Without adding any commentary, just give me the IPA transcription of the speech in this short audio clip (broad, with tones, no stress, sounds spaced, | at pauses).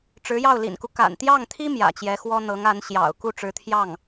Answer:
ʈ͡ʂ ɻ̩˧˥ j ɑ˥˩ ʊ̯ l ḭ˨˩ n k u˦ k a̰˨˩ n t̪ j ɑ˥˩ ŋ t̪ʰ i˥ m j ä̰˨˩ t͡ɕ j ɛ˧˥ x w ɔ˥ n̪ ɤ˧˥ ŋ a˧˥ n ɕ j ɑ̰˨˩ ʊ̯ k u˥˩ ʈ͡ʂ ɻ̩˧˥ t̪ʰ j ɑ˥˩ ŋ